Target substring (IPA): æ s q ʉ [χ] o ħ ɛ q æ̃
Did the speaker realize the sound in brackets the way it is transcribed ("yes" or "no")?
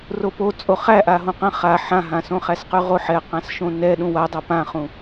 no